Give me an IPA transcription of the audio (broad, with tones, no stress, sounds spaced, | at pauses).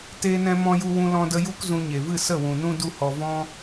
t eː˧ n ɛ̃˧ m ɔ̃˦ j u˦ w ũ˧ l ɔ̃˧ d ə˧ j u˦ k z ũ˧ ɲ e˨ v ɨ˦˨ s ə˦˨ w ũ˨ n ũ˧ d u˦ h ɔ˧ v ɔ̃˦